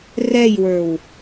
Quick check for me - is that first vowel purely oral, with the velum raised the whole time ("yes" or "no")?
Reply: yes